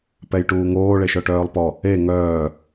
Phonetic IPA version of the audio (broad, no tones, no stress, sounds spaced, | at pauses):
p ɛ j ʈ uː ŋ oː ɭ e ʃ œ ʈ œː lˠ p ɔ | e ŋ œː